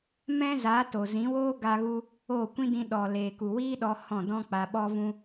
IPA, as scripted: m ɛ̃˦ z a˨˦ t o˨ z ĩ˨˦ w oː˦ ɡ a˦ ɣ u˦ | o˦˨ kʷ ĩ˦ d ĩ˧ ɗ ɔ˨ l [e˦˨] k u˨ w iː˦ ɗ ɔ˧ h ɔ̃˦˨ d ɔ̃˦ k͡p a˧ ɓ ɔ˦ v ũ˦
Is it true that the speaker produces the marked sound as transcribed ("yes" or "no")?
no